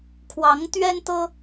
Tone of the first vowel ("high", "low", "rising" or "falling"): rising